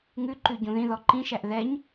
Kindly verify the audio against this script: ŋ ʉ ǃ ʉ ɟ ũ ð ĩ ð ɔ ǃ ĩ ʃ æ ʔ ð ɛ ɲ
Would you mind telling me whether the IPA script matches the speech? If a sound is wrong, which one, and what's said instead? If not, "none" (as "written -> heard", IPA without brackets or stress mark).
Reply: none